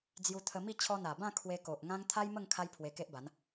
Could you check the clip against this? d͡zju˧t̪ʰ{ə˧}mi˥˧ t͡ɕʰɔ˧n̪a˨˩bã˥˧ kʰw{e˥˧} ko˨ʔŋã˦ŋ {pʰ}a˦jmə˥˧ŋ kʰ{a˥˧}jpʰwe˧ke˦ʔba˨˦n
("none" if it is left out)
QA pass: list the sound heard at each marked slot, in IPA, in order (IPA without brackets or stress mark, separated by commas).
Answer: ə˧, e˧, t̪ʰ, a˦